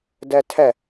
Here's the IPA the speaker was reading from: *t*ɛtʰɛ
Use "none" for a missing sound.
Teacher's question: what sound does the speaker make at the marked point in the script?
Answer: d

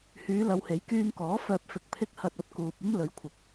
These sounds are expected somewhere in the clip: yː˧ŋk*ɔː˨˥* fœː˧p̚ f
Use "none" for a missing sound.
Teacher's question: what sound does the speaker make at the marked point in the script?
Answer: ɔː˨˥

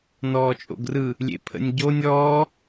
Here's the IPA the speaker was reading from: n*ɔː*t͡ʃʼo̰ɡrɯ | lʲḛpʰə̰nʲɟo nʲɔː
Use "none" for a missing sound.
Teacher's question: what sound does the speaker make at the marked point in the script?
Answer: ɔː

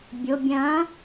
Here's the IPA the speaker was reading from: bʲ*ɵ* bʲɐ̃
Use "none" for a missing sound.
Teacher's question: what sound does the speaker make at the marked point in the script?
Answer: o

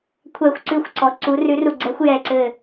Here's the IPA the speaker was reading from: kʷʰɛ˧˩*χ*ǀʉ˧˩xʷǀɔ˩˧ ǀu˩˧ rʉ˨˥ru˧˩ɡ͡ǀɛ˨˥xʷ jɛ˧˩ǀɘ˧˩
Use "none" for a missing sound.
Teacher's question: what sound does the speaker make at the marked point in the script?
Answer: xʷ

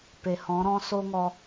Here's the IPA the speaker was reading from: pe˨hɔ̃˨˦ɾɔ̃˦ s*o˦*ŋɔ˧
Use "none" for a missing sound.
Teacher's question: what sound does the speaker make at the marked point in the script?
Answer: o˦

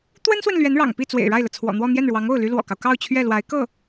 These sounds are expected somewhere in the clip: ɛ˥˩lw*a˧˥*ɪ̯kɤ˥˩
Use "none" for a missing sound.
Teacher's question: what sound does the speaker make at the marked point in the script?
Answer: a˧˥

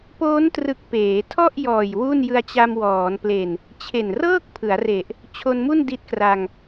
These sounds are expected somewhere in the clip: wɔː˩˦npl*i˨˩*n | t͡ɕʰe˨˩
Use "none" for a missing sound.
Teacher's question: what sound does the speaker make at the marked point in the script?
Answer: e˨˩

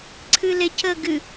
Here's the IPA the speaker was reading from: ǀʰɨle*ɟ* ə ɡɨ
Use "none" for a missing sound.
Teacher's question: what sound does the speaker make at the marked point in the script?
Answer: c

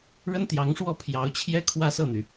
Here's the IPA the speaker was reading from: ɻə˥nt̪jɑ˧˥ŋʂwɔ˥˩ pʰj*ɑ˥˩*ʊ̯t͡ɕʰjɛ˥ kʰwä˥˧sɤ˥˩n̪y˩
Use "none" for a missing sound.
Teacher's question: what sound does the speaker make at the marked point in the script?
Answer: ɑ˧˥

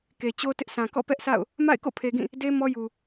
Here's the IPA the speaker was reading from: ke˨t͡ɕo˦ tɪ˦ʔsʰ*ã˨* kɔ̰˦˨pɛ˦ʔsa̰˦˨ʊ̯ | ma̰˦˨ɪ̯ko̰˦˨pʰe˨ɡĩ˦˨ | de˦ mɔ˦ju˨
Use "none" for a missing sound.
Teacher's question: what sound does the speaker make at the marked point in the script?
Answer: ã˨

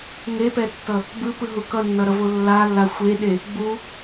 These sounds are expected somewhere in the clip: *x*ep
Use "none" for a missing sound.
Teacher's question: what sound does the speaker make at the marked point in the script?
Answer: ŋ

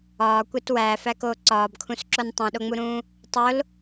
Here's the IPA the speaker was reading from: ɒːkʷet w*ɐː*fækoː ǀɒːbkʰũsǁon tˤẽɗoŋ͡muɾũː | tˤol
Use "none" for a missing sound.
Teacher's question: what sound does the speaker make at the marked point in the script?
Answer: æː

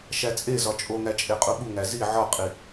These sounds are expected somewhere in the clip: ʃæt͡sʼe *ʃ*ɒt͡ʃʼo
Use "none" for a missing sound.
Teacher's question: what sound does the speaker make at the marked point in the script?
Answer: z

